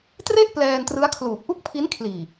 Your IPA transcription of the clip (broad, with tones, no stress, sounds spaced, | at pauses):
t r e˥˩ ʔ p l ɛː˧ n t r ɯ˦˥ a̯ kʰ l uː˨˩ k̚ ʔ u˥˩ k̚ pʰ i˦˥ n kʰ l iː˨˩